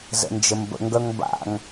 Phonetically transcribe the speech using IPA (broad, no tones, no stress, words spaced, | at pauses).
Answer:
zə̰nd͡ʒəmbə̰ ŋɡœŋba̰ŋ